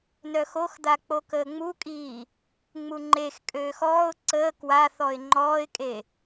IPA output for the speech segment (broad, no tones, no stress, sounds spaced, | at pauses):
n œ x o x d̪ a k͡p o k əː ŋ͡m u kʼ iː | ŋ͡m u ŋ͡ǃ e x kʼ øː x ɔː ʊ̯ ǀ əː k w a θ ɔ ɪ̯ ŋ͡ǃ ɔː ɪ̯ kʼ e